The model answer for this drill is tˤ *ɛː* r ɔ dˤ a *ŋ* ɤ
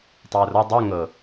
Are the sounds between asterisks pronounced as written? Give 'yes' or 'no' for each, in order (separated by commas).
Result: yes, yes